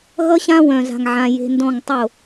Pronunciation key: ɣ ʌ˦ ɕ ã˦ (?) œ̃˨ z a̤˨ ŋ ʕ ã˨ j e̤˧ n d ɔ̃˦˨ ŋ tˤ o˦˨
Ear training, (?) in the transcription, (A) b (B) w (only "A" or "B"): B